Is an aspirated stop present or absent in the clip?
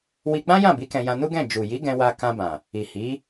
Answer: absent